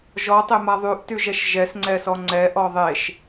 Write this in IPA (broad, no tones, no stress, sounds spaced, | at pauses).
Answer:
ʒ ɔ tˤ e m a ðˤ y ʔ t y ʒ ɛ ʃ ʒ ɛ s ŋ͡ǀ ɛ s ɔ ŋ͡ǀ ɛ ʔ ɔ ðˤ e ʃ